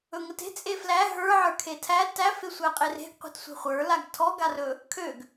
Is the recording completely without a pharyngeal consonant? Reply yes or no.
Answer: no